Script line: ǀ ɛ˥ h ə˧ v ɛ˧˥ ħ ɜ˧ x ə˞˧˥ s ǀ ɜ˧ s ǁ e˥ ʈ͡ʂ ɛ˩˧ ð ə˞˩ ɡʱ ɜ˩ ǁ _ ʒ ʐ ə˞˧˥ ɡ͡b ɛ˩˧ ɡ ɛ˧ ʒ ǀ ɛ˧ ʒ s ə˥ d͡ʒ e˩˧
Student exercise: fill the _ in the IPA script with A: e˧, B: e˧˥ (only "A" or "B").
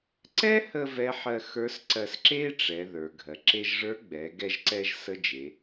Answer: A